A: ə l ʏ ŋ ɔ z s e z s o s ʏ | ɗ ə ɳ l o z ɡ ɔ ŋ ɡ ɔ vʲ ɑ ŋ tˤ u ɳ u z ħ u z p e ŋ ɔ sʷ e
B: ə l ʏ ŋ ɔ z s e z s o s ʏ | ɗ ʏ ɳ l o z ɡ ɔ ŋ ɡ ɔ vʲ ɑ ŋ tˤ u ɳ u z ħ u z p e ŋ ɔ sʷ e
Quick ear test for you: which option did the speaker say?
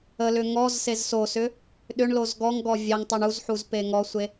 B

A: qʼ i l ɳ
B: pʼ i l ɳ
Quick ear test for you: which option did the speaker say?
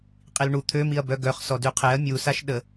A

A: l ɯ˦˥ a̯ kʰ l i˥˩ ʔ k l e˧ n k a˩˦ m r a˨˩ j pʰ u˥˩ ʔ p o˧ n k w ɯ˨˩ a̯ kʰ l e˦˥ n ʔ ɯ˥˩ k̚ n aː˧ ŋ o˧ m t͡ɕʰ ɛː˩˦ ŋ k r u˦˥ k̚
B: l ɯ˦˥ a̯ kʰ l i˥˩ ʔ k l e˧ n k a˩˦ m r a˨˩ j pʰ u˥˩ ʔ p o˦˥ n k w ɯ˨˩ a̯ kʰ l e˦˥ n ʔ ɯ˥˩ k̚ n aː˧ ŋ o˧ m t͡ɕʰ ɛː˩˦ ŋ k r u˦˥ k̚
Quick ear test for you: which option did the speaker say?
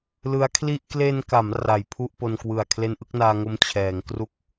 A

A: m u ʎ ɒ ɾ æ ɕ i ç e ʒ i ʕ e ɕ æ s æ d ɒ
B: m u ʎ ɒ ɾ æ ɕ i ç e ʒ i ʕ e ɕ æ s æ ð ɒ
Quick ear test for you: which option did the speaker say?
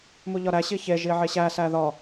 B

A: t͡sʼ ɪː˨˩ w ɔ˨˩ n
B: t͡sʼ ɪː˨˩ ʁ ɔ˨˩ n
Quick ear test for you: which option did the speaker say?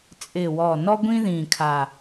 A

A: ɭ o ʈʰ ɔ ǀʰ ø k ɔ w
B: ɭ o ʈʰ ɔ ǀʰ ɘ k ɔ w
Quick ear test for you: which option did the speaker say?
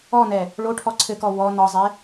B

